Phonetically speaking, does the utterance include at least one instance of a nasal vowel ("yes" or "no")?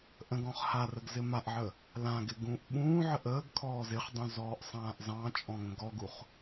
yes